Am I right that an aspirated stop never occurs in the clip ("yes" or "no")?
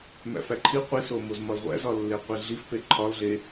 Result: no